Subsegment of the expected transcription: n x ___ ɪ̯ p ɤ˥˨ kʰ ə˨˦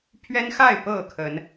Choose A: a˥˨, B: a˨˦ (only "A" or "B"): A